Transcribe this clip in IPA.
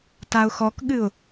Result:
t a ʊ̯ x ɔ k ɠ ɨ ʊ̯

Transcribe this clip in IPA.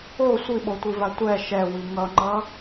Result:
o sʷ i ɓ o tʷ i v a tʷ ɛ ʃ ɛ w i ŋ ʌ ŋ͡ǃ ʌ

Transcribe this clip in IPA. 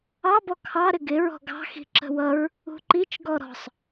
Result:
ɑ b ɔ kʰ ɑ ɾ ɪ ɡ ɪ ɹ ɔ̤ ɡ ɑ̤ x i̤ ǁ ə̤ w ʌ ɹ | ṳ ǃ i t͡ʃ ɡ ɔ ɾ ɔ̤ sˤ

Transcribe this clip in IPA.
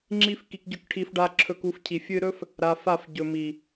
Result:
ŋ͡ǁ i˦ f k i˧ k ɟ ɵ˦˨ k ʈʰ i˧ f ɖ a˧ ǁʰ ɵ˧ k u˧ f cʰ i˨ fʲ ɨ˧ ɾ ɵ˦ f | ɾ a˧ f a˦˨ f ɟ ɵ˨ m i˨

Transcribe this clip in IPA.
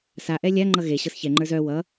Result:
s a ʔ ɛ lʲ a ŋ͡ǃ ʌ ɣ e ɕ ɤ s ç ɛ ŋ͡ǃ ə˞ z œ w ʌ

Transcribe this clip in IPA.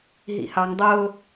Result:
ɦ ḭ h ɑ ŋ dˤ ʊː

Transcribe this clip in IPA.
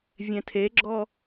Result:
vʲ ɛ̃ tʰ e ɡ͡ǁ ɔ

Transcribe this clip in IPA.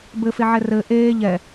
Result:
b ɘ f e ʕ ɛ r ɘ ʔ eː ʎ ɛ

